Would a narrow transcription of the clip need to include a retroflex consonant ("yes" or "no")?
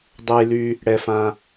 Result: yes